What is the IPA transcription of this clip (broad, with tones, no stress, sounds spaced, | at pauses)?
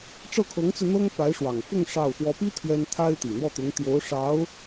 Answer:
ʈ͡ʂ ɤ˥˩ kʰ ɤ˧˥ ŋ t͡s ɹ̩˧ n̪ ɤ˥ ŋ p a˧˥ ɪ̯ ʂ w ɑ˨˩ ŋ f ʊ˥˧ ŋ ʂ ɑ˥˩ ʊ̯ x w ɔ˧˥ p i˥ t̪ʰ ɥ ɛ˥ n t̪ʰ a˥ ɪ̯ t̪ i˨˩ n̪ w ɔ˥˩ t̪ ʊ˧˥ ŋ t̪ j o˧˥ ʊ̯ ʂ ɑ˧˥ ʊ̯